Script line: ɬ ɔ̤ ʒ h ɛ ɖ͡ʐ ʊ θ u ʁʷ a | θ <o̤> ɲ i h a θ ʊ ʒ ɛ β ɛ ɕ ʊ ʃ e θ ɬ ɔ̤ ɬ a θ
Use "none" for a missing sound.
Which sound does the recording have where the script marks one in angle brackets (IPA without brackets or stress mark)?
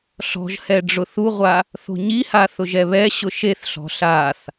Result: o̤